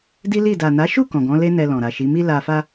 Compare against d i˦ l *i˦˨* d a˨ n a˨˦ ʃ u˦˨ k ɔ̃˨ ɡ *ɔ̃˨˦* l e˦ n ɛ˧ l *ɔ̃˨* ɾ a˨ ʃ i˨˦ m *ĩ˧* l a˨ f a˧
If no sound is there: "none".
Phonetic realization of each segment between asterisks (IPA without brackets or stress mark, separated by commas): i˦˨, ɔ̃˨˦, ɔ̃˨, i˧